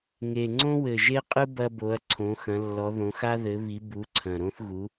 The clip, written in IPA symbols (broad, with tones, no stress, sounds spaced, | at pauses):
ŋ e˨˩ ŋ͡ǀ õ˥ w ɘ˨˩ ʒ e˥ qʼ ɨ˥ b ɐ˥ b o˨˥ ɐ̯ ǀʰ õ˨˥ x ɐ̃˨˥ lː ɔ˨˥ ð õ˨˥ x a˥ ð ɘ˨˥ β i˨˥ b u˨˥ ǀʰ ɐ̃˨˩ ɾ õ˥ θ ɣ u˨˥